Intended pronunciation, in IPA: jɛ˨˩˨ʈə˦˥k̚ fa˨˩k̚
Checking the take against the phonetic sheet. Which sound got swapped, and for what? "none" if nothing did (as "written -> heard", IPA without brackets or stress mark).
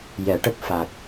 none